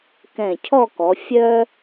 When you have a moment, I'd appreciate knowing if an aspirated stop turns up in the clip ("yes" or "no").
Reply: yes